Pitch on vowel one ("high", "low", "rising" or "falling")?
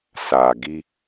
low